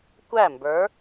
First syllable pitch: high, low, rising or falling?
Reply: falling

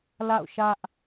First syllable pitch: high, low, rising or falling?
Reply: falling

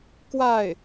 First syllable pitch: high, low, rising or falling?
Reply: falling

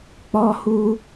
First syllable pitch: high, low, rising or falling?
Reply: high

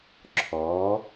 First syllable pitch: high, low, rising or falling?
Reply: rising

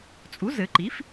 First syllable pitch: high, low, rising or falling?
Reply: rising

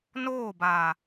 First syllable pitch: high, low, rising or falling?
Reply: falling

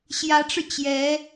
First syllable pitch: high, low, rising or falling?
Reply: rising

